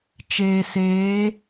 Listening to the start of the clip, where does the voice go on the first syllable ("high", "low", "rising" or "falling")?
low